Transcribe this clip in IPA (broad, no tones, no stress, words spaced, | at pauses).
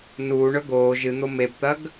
nuːɳɵ ɡoː ʒɨn̪o mebt̪ɐɡ